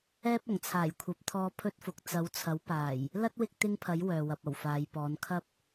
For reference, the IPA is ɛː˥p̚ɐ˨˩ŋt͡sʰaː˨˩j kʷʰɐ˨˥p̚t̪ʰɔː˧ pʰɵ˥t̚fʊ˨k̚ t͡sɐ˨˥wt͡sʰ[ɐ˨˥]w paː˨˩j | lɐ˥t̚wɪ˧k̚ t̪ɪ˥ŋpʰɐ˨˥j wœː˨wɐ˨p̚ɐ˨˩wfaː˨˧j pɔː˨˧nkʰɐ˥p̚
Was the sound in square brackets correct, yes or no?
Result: yes